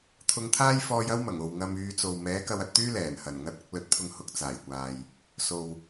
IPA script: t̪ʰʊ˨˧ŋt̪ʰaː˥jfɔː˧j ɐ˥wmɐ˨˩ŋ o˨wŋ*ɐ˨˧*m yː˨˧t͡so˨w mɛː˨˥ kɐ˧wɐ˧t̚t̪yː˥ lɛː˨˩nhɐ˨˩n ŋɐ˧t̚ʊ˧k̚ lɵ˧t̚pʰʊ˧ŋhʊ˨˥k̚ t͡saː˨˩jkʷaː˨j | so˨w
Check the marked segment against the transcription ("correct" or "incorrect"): incorrect